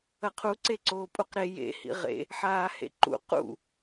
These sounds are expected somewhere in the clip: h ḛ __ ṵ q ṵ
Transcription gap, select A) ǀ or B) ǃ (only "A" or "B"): B